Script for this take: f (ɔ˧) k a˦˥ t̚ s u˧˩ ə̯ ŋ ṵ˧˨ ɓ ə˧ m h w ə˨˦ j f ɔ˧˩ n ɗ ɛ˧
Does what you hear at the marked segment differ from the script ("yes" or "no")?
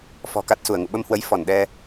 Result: yes